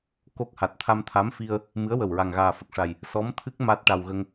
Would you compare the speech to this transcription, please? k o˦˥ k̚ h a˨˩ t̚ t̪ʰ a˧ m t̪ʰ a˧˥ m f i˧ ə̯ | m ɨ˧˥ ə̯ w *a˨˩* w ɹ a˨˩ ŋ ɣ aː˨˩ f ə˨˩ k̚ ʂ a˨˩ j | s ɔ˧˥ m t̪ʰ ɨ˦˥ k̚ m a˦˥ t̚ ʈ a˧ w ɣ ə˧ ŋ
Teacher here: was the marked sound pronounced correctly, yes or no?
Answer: no